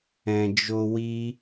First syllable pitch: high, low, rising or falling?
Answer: low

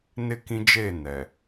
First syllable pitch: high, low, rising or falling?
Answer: falling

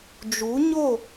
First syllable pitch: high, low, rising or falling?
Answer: rising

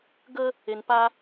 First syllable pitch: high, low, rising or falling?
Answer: high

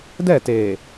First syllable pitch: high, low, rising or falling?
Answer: falling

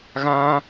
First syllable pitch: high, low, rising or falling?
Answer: high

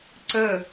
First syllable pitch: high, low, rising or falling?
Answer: falling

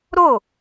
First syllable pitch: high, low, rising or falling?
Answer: falling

